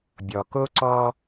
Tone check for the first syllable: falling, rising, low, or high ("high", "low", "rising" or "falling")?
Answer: low